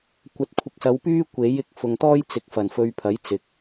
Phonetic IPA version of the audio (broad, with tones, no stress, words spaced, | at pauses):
kʷɐ˨t̚kʷʰɪ˨k̚sɐ˨˧wpyː˥ kʷe˨˥j ɪ˨k̚fʊ˨ŋt̪ɔː˥j t͡sɪ˨˥k̚fɐ˨˩n fɵ˧ɥpʰɐ˨˥jt͡sɪ˨k̚